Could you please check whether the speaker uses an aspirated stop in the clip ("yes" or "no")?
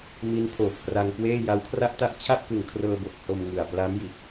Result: yes